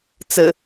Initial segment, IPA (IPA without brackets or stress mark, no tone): t͡s